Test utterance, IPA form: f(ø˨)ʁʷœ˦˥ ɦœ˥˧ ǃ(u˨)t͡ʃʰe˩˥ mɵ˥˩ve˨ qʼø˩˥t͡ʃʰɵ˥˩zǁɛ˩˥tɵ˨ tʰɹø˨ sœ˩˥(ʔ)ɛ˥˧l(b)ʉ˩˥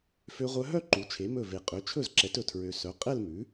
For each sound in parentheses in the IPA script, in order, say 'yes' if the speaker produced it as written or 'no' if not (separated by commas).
no, no, no, no